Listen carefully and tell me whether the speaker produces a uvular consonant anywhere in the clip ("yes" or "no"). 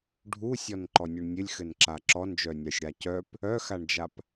no